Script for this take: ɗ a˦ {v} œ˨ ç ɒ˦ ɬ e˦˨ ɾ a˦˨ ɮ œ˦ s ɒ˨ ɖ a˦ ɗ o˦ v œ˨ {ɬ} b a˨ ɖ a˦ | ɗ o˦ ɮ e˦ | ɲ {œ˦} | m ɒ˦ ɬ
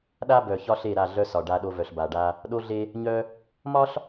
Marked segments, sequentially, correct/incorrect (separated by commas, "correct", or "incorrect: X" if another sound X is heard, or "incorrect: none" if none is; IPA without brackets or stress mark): incorrect: b, correct, correct